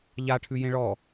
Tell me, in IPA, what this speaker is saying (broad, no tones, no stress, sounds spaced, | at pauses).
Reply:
ʎ a ʈʰ ʉ j ẽ ɭ ɔ